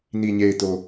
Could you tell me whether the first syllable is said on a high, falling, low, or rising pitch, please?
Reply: low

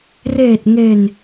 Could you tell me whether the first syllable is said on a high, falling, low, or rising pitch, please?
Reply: low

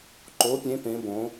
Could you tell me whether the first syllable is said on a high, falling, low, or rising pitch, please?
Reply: rising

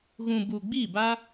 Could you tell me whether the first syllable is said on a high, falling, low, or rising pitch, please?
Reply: low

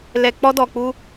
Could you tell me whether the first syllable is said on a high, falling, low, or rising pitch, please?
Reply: low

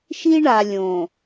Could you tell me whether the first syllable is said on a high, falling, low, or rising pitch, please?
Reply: high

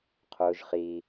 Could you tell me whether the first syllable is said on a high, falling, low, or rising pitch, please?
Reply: high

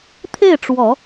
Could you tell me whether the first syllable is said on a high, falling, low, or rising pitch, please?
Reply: falling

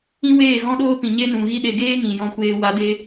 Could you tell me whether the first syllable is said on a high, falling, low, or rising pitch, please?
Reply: high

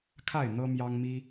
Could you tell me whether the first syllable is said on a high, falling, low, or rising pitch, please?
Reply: falling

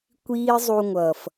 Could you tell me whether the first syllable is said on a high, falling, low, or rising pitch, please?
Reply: high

